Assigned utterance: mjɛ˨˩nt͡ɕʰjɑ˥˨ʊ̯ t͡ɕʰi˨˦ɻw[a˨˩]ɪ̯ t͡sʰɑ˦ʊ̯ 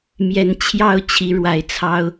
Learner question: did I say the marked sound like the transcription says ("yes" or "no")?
yes